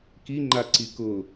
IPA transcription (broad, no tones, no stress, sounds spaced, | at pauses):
k i ŋ͡ǃ a ǀ i k ʊ